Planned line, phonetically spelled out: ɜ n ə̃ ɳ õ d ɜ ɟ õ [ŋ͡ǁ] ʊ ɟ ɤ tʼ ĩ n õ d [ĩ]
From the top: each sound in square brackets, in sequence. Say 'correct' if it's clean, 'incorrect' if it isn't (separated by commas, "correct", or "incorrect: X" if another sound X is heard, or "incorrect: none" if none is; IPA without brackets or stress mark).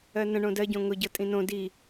incorrect: ŋ, incorrect: i